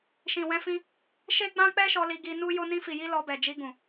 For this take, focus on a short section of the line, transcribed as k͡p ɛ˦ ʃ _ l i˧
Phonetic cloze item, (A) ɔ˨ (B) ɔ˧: B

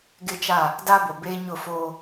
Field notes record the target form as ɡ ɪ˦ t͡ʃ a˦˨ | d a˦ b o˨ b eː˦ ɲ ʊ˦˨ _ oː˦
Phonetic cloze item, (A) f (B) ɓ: A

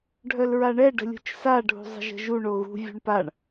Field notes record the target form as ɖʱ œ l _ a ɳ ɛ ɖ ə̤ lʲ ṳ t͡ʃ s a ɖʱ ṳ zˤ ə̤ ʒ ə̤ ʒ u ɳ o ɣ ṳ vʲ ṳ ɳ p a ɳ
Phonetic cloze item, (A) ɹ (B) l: A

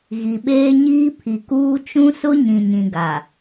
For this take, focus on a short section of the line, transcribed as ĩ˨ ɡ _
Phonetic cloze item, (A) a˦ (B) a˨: B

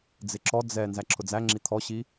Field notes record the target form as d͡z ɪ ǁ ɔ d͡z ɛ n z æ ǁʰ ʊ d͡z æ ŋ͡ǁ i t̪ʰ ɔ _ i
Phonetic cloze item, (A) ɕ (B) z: A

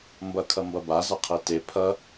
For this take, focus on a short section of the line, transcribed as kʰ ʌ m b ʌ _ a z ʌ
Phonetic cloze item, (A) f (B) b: B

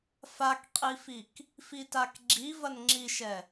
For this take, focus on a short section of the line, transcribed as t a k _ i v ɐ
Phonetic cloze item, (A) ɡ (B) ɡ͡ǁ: B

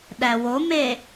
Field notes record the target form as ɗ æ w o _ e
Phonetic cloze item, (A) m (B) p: A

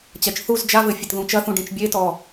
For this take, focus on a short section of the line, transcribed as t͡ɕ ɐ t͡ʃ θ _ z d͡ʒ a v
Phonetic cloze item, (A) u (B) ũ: A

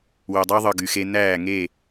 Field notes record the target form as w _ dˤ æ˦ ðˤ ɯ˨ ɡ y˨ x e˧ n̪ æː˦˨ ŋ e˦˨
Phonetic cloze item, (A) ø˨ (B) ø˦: A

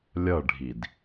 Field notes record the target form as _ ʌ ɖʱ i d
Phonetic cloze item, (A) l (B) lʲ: B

